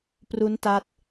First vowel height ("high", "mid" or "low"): high